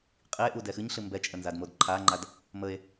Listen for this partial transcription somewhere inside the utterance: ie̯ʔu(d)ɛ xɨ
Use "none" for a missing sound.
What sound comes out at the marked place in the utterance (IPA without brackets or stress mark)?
d